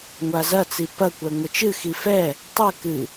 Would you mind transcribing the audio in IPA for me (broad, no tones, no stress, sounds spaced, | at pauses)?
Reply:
ŋʷ a z ɐ t͡s i p ɐ kʷ ɛ ŋʷ ɘ t͡ʃ ɨ x i f ɛ | tˤ ɘ k ɨ